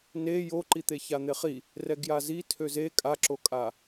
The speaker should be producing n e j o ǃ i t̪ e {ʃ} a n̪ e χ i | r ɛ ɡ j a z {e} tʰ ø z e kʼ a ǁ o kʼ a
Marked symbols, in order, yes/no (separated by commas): no, no